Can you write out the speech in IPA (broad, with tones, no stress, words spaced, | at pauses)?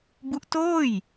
bu˦˥ʔtoː˥˩j